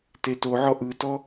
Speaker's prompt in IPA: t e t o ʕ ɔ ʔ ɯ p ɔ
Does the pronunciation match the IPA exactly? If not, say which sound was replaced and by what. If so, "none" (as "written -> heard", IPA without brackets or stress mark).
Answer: p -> t